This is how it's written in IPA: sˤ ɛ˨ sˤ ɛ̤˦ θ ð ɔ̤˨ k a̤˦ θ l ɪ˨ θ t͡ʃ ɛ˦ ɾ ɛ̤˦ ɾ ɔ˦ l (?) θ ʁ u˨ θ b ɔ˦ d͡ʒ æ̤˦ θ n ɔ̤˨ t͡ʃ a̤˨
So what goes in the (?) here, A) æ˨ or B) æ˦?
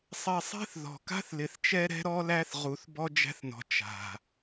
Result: B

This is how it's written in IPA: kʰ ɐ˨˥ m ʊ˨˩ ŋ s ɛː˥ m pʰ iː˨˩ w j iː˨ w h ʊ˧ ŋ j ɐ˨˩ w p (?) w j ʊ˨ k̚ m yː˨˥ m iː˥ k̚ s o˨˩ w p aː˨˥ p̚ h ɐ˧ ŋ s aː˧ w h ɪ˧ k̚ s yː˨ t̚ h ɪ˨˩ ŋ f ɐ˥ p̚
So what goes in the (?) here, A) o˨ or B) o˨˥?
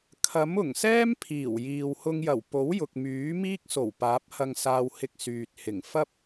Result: B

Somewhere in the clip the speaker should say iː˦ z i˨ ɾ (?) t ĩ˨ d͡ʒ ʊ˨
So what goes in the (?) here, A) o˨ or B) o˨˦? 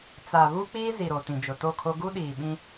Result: A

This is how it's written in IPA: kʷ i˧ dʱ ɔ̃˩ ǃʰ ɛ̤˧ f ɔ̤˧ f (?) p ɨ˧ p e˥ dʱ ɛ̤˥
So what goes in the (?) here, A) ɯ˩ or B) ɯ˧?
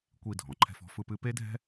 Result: B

